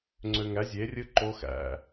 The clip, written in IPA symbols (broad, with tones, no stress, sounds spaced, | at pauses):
ŋ͡ǀ ø˧ ŋ æ˨˥ zʲ e˨˥ rʲ ɯ˦˥ ǃ o˦˥ x æ̰˧